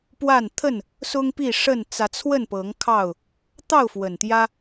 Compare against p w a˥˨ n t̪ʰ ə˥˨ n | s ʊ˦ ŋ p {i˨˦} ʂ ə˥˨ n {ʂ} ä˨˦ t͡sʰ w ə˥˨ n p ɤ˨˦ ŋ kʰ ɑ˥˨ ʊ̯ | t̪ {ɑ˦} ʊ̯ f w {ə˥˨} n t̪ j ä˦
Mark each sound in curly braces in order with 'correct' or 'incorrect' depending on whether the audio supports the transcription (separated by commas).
incorrect, incorrect, incorrect, incorrect